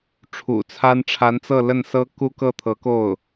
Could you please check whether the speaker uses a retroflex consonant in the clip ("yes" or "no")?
yes